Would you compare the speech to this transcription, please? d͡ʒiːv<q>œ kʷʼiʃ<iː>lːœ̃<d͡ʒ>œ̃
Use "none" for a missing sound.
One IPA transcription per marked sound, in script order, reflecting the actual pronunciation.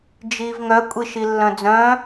ŋ, i, d͡z

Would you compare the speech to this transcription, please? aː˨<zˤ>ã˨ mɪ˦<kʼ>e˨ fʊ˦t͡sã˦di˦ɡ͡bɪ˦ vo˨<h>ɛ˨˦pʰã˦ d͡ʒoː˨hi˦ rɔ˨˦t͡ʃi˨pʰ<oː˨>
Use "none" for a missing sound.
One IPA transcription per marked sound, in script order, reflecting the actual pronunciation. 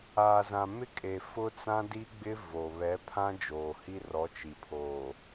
z, kʼ, β, oː˨

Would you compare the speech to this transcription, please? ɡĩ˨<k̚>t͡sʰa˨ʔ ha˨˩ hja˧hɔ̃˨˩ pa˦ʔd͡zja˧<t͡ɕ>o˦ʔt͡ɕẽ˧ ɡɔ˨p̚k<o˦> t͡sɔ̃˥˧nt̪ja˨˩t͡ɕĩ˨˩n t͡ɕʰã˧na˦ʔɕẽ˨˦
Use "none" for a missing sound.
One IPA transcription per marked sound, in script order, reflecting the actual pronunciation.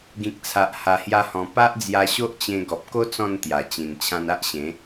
k̚, ɕ, o˦

